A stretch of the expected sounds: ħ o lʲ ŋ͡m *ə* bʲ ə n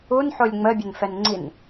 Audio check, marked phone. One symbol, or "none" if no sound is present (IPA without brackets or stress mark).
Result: ə